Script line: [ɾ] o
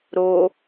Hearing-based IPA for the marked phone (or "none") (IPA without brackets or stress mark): ɾ